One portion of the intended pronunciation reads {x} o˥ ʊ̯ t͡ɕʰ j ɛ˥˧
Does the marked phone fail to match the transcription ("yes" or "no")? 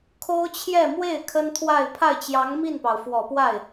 yes